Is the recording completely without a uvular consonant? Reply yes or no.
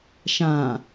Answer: yes